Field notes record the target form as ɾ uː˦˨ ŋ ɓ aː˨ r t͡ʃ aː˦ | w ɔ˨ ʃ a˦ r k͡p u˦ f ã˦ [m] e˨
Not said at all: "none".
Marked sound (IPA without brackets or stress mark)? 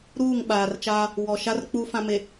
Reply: m